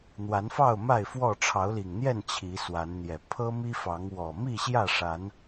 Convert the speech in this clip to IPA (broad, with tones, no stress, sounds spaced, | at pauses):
n̪ w a˨˦ n f ɑ˥˨ ʊ̯ m a˥˨ ɪ̯ f w ɔ˥˨ ʈ͡ʂʰ ɑ˨˦ ʊ̯ l i˨˩ ŋ n̪ j ɛ˥˨ n t͡ɕʰ i˨˦ s w a˨˦ n n̪ j ɛ˨˩ pʰ ɤ˦ m i˦ f ɑ˨˦ ŋ w ɔ˨˩ m i˥˨ ɕ j ä˥˨ ʂ a˨˦ n